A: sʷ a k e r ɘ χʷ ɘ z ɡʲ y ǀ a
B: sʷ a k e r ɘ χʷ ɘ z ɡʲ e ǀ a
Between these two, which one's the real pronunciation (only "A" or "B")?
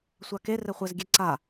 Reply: B